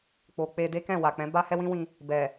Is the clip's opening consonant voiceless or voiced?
voiceless